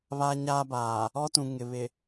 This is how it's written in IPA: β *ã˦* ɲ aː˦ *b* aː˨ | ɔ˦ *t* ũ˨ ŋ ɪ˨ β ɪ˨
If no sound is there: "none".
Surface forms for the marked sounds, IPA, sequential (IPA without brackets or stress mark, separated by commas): a˦, b, t